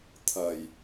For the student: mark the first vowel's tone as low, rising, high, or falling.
low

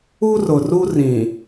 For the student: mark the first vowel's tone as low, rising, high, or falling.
high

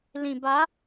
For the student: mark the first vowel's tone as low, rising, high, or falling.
low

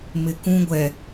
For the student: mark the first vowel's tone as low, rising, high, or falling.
low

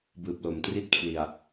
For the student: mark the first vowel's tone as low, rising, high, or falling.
low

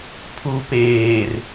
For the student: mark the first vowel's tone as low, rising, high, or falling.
low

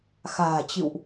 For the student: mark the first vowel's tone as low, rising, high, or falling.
low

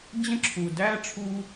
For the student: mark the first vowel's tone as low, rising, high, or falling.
high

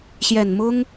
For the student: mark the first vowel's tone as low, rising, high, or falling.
low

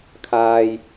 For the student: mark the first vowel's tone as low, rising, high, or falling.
low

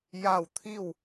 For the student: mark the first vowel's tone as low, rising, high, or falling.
falling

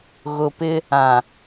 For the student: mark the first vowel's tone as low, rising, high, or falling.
low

